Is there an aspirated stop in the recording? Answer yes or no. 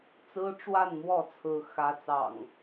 yes